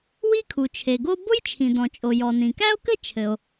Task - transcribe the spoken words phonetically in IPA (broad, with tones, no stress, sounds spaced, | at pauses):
w i˥ kʰ u˩ t͡ʃʰ e˩ ɡ o˥ b ʊ˥ j t͡ʃʰ ĩ˩ d ɔ̃˩ t͡ʃʼ o˩ j ɔ˩ n ĩ˩ k æ˥ o̯ k ɘ˥ t͡ʃʰ ɘ˩ o̯